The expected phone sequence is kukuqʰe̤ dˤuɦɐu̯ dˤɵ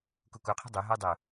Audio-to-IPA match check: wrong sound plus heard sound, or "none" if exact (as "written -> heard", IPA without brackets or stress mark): none